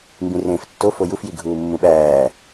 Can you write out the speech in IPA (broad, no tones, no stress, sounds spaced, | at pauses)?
m b ĩ r ẽː f tː o f o j u f j i ɡʱ uː mː ũ ɓ æː